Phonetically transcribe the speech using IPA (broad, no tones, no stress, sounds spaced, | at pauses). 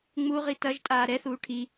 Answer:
ŋ͡m u ʁ i t ɐ ʒ tʼ aː ɾ ɛ θ uː ʈʰ i